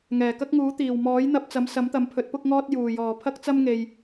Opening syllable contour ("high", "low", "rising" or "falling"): low